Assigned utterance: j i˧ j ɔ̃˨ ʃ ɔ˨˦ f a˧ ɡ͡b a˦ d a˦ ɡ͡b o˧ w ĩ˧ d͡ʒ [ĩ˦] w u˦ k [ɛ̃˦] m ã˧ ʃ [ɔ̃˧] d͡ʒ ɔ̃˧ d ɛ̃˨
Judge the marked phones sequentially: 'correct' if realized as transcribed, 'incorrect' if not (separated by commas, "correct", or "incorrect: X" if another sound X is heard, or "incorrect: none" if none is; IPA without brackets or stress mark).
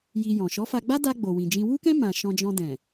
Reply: correct, correct, correct